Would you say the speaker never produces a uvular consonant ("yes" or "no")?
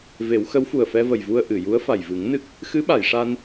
yes